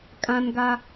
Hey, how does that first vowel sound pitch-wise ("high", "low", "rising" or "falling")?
high